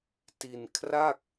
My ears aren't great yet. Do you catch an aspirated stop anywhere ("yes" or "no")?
yes